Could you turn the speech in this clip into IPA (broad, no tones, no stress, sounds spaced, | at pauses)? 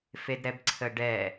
f e d ɾ ɛ b ǀʰ ə ɖ ɛ